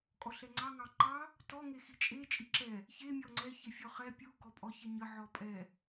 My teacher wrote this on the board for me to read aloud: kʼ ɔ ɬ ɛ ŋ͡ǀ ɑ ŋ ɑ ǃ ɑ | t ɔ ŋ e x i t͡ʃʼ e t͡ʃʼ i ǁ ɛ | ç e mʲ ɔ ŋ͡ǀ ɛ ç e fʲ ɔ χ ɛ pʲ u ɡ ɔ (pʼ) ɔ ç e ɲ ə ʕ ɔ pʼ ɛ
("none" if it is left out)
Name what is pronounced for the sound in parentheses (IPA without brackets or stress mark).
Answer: pʼ